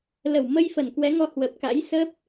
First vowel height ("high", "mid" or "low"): mid